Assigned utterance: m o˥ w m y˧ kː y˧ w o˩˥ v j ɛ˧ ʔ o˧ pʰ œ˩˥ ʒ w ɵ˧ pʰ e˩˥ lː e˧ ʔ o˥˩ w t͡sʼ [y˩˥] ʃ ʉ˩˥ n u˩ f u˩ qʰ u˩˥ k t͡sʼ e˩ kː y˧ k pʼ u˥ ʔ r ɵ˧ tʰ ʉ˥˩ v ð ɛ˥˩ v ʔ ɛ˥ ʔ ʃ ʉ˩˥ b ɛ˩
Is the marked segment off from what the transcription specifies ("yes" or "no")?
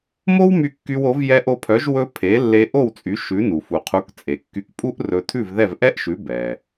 no